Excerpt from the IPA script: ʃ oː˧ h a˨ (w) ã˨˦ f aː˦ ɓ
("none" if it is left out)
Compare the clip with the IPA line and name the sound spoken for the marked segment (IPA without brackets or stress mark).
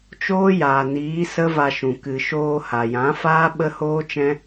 j